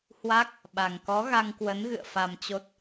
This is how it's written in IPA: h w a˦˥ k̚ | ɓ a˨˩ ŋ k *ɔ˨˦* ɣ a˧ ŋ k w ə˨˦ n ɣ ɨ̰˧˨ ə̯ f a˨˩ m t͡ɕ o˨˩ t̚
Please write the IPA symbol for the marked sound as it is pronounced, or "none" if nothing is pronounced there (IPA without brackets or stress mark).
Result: ɔ˨˦